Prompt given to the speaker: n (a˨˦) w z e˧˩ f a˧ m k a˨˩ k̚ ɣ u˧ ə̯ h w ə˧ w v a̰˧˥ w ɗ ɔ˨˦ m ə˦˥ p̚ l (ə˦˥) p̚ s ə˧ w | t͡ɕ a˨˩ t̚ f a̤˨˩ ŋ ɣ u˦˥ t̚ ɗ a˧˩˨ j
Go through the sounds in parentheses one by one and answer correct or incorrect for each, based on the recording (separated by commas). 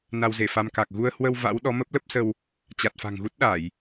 incorrect, correct